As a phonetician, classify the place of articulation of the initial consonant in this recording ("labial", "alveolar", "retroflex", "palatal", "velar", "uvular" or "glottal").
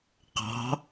uvular